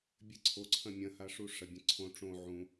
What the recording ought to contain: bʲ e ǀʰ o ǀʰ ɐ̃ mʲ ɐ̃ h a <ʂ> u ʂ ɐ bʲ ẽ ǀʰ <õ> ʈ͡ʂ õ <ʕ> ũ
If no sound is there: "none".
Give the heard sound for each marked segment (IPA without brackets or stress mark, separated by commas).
ʂ, õ, ʕ